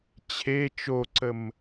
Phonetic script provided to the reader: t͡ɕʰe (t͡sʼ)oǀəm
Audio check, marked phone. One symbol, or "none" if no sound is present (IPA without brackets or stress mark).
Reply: t͡ʃ